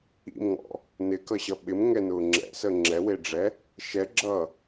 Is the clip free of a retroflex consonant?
no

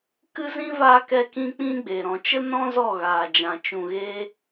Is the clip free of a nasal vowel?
no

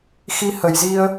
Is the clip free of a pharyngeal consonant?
yes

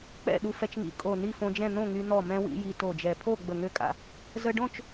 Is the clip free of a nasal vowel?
no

